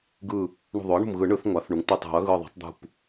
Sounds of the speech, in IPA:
ɡ ɯ˧˩ | ɳ ṳ˧˩ ðˤ o˩˥ ɐ̯ ɳ ṳ˧˩ m ɣ ɯ˨˩˦ ɳ ɯ˩˥ θ ŋʷ a˩˥ θ ɳ u˩˥ ŋ t̪ ɯ˧˩ tˤ ṳ˨˩˦ ɐ̯ ɣ ɯ˧˩ ðˤ a̤˩˥ tˤ d̪ ṳ˧˩ p

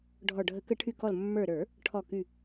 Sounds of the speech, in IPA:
ɖʱ ɔ˨˩ ɖʱ ə˧˩˧ k ə˧˩˧ ʈʰ y˨˩ k ɔ˨˩ l mː ə˞˨˩ ɾ ə˞˧˩˧ | ʈʰ ɔ˨˩ k y˨˩

